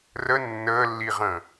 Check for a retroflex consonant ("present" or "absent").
absent